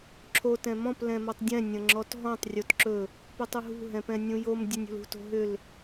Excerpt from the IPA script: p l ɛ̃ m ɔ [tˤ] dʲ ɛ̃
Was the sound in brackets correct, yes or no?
yes